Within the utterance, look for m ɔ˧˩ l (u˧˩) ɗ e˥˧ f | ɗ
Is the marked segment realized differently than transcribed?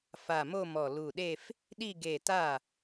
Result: no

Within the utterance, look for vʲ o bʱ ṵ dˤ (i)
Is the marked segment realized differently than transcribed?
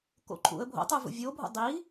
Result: no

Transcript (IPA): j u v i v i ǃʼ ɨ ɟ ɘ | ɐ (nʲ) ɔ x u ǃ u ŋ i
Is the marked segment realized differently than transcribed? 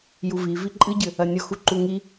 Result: no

